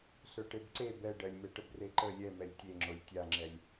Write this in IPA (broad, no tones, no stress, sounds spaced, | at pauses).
ɬ ə˞ ʈ e b ǀ e b ɛ ɖ ɜ lʲ m ɛ ʈ ə b r e ǃ ə lʲ ɛ m ɛ lʲ tʲ e ŋ͡ǁ o lʲ tʲ a ŋ͡ǁ ɛ lʲ